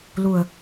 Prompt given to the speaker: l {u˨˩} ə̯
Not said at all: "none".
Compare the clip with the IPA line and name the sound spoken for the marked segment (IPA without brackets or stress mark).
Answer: u˨˩